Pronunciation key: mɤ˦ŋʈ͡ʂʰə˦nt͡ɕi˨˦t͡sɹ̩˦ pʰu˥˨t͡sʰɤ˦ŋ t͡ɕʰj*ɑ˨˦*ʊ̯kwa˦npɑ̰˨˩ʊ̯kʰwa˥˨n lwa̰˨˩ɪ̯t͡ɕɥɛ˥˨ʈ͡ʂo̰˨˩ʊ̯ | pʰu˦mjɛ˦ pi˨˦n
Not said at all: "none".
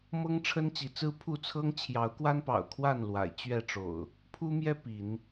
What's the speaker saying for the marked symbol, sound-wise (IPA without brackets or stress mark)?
ɑ˨˦